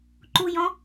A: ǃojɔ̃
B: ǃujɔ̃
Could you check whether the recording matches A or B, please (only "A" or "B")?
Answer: B